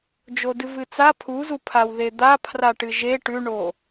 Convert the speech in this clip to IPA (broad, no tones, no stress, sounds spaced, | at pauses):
d͡ʒ o d ɨ v ɨ t͡s a pʰ u z u pʰ a w ð e d̪ a pʰ r a ʈ ɨ ʒ e ʈ ʉ ɳ o